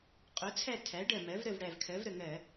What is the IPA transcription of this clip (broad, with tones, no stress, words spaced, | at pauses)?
qʼo˩˥t͡sʰæ˦˨ tʰæ˩˥ɖɜ˨˩mɜ˩˥v ɾə˦˨vɽæ˨˩vkʰɜ˩˥vɾə˨˩ ŋɜ˧˩˧